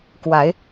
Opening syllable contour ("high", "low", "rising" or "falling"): rising